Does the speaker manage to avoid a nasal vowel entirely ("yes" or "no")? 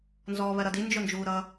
yes